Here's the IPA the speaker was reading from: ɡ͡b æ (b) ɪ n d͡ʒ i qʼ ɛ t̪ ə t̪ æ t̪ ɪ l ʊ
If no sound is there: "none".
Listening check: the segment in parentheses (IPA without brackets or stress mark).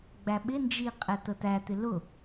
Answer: ɓ